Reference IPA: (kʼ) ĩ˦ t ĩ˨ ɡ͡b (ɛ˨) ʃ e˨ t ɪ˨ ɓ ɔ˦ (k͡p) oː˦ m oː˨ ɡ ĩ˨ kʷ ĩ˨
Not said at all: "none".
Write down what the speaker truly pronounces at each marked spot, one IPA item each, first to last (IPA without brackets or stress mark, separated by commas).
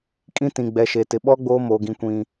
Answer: kʼ, ɛ˨, ɡ͡b